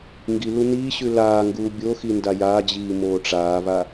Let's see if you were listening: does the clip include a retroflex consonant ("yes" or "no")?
yes